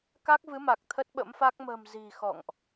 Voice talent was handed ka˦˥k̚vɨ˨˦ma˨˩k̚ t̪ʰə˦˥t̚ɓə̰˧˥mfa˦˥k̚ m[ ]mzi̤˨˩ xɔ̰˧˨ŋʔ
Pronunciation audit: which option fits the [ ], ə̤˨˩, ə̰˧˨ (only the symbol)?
ə̤˨˩